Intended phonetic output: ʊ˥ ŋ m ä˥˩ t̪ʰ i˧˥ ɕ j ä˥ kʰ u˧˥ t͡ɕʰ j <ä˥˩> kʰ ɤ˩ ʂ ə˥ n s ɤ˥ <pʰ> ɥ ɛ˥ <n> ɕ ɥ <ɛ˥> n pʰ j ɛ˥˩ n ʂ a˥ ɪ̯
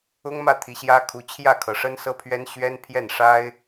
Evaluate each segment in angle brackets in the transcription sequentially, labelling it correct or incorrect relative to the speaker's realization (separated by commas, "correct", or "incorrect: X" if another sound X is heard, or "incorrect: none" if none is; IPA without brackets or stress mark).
correct, correct, correct, correct